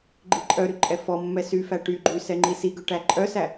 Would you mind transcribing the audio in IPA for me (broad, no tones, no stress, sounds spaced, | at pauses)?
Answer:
ɡ͡ǃ i ǃʼ œ ɾ y ǃʼ ɛ f ɔ mː ɛ s y f æ ʈ y ɡ͡ǃ y s ɛ ŋ͡ǃ i s i ɡ ø ʈ æ ǃʼ œ s æ